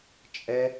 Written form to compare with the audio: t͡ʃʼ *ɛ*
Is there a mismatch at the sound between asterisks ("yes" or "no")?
no